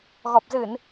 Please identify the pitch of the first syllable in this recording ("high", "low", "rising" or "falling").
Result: low